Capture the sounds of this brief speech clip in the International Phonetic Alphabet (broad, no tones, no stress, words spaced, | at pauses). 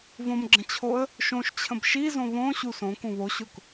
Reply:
võmɡ͡ǁə̃t͡ɕʰoə̯ | ʃõʃt͡ɕʰə̃b ʃizõ βõ ɕusõ kũβoɕʊk